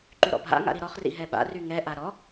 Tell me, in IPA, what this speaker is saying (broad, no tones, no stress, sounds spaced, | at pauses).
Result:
ǃ y ɾ ɔ̰ bʱ a̰ ŋ a̰ ɾ i ɾ ɔ χ r ḭ ɦ ɛ ɓ a̰ r y ŋ ɛ ʔ a ɾ ɔ